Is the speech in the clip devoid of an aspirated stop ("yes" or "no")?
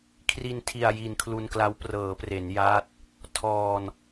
no